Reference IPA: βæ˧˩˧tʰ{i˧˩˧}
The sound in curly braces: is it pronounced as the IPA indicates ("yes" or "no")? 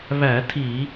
yes